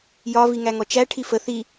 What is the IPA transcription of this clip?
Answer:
jɒ viŋæŋɔt͡ʃæ ʈʰifə θi

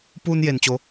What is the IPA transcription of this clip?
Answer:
puː˧nje˩nt͡ɕo˩˧

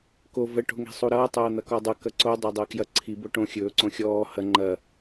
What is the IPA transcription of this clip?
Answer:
ko və ʈo̤ŋe̤sˤuɾʌː tˤɐːn̪ɐkɔdˤɐ kɐǀo dˤædˤɐːkjɐ ǀʰi boʈõ xʲɵː ǀõxʲɔː hɐ ŋ͡ǃɐ

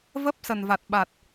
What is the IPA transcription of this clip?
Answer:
və˦˥p̚sə˨˩n va˨˩t̚ɓa˨˩t̚

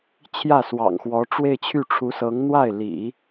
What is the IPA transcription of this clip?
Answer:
t͡ɕʰjä˥˩swɑ̰˨˩ŋxwɔ˧˥ ʈ͡ʂwe˥˧ɪ̯t͡ɕʰy˥˩ʈ͡ʂʰu˧˥sɤ˧˥ŋ n̪wa˥˩ɪ̯lḭ˨˩˦

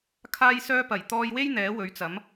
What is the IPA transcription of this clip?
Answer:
kʰaː˥jsœː˥pɐ˨˩j t̪ɔː˧jwe˥j n̪ɛː˨˥wɵ˨˥ɥt͡sɐ˨˥m

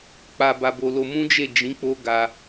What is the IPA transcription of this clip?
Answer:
k͡pa˧ba˧bo˧lo˧ mũ˦d͡ʒe˦˨ d͡ʒĩ˨˦ k͡po˦ɡa˧

